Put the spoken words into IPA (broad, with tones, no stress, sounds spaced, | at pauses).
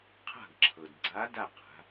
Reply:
qʰ a̤˦˨ ɡ ǁʰ ɤ˩ d ɡ͡ǀ a˧˥ d a˦˨ q a̤˩˧